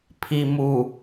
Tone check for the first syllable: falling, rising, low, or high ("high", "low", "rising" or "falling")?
low